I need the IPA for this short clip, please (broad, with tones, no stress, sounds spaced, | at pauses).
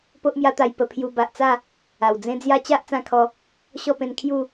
p o˦ ʔ m j a˦ t̪ a˧ j p ə˧ pʰ j u˧ b a˨ ʔ t͡s a˥˧ | a˨˩ w d͡z ẽ˦ d͡z j a˦ t͡ɕ a˦ ʔ t͡s ã˦ kʰ ɔ˧ | ɕ ɔ˥˧ p ẽ˧ n kʰ j u˥˧